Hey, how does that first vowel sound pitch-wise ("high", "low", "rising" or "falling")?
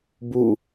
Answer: falling